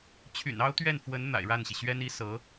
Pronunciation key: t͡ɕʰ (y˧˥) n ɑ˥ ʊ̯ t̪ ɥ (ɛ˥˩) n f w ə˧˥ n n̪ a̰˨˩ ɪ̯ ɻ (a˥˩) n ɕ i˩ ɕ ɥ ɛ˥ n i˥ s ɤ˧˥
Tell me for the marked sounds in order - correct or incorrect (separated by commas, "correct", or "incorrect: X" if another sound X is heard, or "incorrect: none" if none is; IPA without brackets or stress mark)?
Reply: incorrect: y̰˨˩, correct, correct